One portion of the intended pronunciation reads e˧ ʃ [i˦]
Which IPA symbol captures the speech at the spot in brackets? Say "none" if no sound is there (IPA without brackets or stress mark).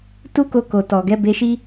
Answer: i˦